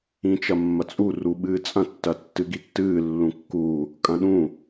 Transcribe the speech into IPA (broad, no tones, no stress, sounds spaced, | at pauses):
ĩ t͡ʃ ɐ mː ɐ t͡sʼ u r u ɓ ɨː t͡sʼ ɐ̃ tː ɐ tː ɨ ɡ i tː ɨː lː ũ kː u | kʼ ɐ̃ ɗ ũ